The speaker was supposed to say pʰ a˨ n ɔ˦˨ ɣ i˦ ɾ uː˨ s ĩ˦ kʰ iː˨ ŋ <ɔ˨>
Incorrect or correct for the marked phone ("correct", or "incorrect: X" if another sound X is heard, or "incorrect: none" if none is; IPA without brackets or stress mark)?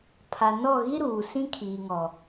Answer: correct